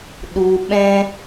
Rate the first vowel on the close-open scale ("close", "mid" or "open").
close